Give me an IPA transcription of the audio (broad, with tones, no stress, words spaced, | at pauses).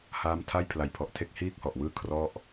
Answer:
haː˦˥mtʰa˥˩j pʰla˨˩jpʰɔ˨˩ʔtʰe˦˥k̚ hiː˥˩k̚hɔ˨˩ʔwɯː˥˩ kʰrɔ˥˩ʔ